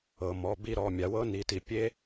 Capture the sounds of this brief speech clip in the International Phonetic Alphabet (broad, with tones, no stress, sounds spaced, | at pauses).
ɤ˩ m ɔ˩˧˩ b i˦˨ ɾ ɔ˩˧˩ mʲ a˩˧ w ɤ˦˥ n i˩˧ t i˩ pʲ e˦˥